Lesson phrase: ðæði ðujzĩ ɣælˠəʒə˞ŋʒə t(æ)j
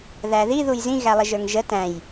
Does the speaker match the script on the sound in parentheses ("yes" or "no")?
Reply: no